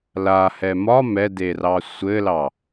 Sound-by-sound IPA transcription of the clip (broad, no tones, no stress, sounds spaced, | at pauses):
l a h ɛ m ɒ m ɛ d e r ɑ sʷ ɘ l ɑ